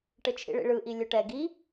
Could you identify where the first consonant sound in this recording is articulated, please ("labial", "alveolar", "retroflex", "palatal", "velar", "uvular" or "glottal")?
retroflex